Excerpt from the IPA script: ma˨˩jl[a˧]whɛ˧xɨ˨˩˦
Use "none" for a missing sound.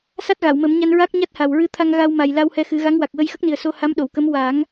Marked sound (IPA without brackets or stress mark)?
a˧